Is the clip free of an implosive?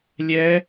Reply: yes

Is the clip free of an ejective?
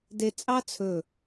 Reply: no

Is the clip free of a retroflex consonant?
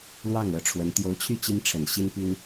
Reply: no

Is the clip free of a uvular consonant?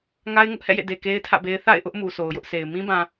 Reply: yes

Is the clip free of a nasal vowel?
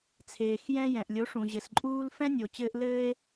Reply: no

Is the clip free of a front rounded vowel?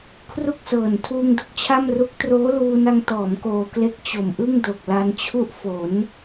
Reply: yes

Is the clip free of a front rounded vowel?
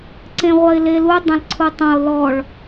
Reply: yes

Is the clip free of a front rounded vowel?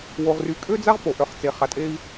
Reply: no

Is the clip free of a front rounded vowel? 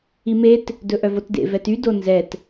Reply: no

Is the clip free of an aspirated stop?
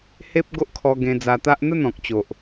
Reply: no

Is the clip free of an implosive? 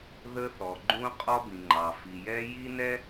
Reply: yes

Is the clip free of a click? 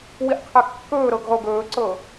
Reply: no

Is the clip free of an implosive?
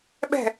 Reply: no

